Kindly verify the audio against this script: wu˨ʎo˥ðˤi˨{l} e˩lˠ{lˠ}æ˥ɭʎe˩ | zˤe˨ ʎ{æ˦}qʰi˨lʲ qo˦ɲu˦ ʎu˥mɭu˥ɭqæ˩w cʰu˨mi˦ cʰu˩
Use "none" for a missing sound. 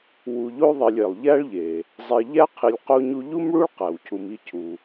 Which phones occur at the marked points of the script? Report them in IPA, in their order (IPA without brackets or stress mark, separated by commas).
lʲ, ʎ, æ˥